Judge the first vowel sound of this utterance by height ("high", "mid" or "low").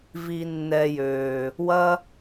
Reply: high